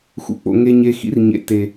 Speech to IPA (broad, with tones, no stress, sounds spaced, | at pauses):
x ṵ˨ k͡p o̰˨ ŋ e˨ ɲ e˨ x ḭ˦ r ɲ ḛ˨ t e˨